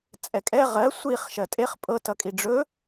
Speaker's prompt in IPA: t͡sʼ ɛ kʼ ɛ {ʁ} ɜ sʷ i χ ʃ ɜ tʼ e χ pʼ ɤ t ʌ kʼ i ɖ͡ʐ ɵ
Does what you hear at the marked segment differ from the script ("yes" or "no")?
no